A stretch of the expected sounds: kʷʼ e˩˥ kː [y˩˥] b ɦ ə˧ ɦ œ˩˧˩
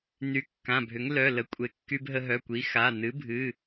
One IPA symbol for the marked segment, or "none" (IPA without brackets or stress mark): y˧